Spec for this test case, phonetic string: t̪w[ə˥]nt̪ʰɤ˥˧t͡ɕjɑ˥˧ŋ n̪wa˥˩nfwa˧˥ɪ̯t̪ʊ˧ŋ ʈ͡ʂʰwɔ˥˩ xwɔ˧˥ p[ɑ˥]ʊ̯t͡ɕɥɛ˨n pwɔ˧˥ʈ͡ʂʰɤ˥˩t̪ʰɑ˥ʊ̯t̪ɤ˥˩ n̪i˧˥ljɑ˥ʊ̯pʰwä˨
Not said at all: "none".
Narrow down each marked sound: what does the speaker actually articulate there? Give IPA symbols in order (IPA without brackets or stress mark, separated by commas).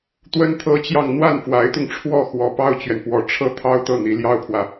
ə˥, ɑ˥